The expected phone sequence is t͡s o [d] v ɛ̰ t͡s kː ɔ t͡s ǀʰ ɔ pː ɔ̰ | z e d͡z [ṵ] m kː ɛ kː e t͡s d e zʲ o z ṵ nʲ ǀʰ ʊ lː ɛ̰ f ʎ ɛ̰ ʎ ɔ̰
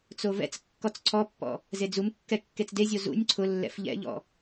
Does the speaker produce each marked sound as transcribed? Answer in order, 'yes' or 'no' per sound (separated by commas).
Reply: no, no